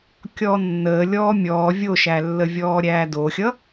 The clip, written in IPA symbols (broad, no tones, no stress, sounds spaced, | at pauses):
kʲ ɔː nː əː lʲ ɔː mʲ ɔː vʲ o ʃ æ lː ə vʲ ɔː ɾʲ æː d o xʲ ʌ